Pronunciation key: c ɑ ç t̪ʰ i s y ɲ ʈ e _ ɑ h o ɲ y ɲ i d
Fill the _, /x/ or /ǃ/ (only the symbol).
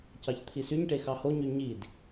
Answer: x